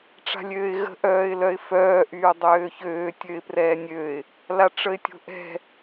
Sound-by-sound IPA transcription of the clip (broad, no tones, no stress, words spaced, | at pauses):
ʈ͡ʂa̤lʲøːɪ̯ɣə̤ ʔœːɪ̯lœɪ̯fœː ʔyːdˤøːçøː tʲøɪ̯prɛːnʲøɪ̯ | laʈ͡ʂəɪ̯tʲo̤ʔɛ̤